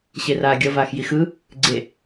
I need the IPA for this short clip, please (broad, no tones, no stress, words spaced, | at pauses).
ɕeraːɡʲʌ vaːxjixɯ | ɡ͡ǀe